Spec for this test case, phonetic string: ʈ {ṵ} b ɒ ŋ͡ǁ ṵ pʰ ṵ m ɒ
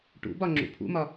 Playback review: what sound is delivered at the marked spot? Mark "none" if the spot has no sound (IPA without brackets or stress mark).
ṵ